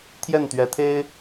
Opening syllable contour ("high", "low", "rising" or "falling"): falling